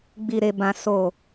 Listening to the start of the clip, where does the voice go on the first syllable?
low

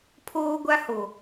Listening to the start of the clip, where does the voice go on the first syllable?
high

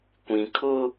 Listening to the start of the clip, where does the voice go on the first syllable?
low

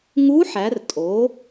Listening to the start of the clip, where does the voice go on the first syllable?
rising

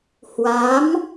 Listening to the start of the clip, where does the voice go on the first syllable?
rising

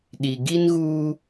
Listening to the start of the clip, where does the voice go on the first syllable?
low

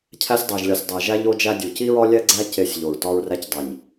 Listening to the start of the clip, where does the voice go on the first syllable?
high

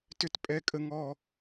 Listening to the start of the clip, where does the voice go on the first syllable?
high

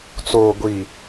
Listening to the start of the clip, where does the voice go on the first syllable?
low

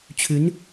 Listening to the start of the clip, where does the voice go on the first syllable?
rising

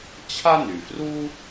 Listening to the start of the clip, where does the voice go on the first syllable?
high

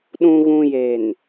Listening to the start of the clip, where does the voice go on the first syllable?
low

